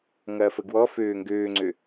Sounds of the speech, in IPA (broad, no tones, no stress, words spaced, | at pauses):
ŋɐːfəɡwɔføː ŋɡøːŋ͡ǀø